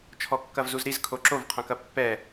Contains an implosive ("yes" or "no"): no